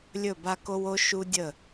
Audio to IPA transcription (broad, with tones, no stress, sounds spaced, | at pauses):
lʲ ɵ˦˨ b a˦ k o˦ w o˦ ʃ u˦ dʲ ə˦˨